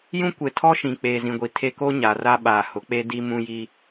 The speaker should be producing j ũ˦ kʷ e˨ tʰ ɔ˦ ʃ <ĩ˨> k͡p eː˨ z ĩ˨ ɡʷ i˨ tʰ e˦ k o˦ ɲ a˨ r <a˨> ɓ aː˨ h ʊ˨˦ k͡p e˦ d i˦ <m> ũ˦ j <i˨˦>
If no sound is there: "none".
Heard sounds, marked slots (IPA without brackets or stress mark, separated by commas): ĩ˨, a˦, m, i˦